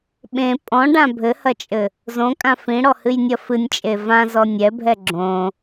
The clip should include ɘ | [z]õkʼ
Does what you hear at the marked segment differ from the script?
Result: no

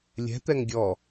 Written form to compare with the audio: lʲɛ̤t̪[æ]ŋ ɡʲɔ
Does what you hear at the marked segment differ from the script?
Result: yes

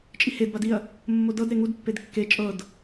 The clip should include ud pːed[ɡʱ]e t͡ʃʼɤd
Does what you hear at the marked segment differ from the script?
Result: yes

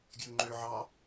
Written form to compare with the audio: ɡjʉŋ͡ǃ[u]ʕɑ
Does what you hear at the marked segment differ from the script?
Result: yes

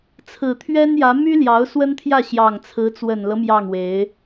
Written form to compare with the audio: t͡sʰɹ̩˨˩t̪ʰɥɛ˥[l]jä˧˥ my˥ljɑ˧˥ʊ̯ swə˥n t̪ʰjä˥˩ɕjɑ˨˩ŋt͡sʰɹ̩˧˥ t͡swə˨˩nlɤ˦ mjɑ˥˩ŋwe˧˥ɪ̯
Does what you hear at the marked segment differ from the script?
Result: yes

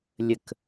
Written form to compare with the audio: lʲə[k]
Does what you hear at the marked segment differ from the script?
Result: no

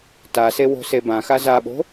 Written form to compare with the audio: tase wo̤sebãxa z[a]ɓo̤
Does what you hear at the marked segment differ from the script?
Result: no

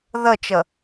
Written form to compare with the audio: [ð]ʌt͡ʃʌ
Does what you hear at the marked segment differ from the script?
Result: no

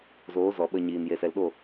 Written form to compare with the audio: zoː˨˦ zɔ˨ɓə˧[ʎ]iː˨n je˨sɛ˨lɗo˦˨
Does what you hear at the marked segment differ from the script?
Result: yes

